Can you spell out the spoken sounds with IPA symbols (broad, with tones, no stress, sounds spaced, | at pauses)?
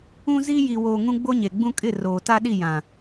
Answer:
ũ˦ z i˦ j i˨ w oː˨ ŋ ũ˦ ɡ͡b o˦ ɲ e˨ ɡ͡b ũ˦ kʼ ɪ˦˨ r oː˨ t a˦ ɗ i˦˨ j ã˨